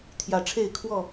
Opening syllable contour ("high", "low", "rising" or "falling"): rising